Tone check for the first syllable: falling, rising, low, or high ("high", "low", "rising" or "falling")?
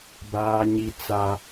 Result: high